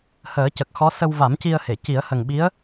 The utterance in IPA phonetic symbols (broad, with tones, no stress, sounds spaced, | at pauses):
h əː˨˩˦ c ə˨˩ k̚ x ɔ˧˥ s ə˧ w v a˨˩˦ m c i˧ ə̯ h e˨˩˨ c i˨˩˦ ə̯ h ə˨˩ ŋ ɓ i˧˥ ə̯